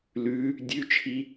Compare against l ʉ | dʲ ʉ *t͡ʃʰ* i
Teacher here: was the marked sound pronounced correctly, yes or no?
yes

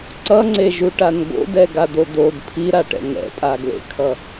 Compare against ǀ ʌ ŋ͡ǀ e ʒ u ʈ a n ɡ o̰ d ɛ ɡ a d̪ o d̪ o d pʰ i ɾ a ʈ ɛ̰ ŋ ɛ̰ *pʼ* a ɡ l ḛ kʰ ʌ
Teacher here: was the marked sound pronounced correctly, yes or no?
yes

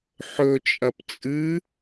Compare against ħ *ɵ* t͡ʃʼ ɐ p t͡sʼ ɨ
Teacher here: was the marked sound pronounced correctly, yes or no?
yes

